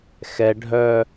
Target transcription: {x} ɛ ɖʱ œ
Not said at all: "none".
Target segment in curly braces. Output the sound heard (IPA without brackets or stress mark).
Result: x